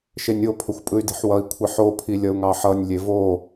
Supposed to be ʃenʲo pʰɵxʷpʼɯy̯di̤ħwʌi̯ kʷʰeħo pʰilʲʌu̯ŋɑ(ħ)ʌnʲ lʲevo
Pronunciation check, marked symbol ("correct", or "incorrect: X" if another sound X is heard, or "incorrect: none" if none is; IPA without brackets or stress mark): correct